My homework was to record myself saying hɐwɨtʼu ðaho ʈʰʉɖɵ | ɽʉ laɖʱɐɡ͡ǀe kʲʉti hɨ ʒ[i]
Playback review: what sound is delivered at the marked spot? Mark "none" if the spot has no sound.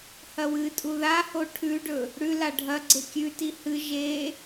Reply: e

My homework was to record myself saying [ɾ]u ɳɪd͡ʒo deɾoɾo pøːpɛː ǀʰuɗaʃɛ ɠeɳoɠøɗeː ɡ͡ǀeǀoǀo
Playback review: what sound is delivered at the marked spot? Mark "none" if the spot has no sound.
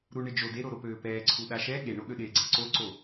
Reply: ɾ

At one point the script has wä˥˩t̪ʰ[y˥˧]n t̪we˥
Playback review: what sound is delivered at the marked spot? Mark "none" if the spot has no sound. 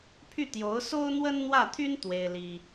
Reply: y˥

